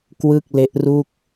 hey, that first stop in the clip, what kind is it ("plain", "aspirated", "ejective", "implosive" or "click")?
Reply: plain